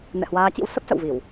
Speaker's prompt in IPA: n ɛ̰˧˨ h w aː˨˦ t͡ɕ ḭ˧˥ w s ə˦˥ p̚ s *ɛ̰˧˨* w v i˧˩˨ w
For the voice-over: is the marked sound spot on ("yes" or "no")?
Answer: no